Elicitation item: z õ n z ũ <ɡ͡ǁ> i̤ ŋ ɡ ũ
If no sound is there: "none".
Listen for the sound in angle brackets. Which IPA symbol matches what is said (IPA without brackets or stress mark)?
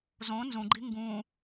ɡ͡ǃ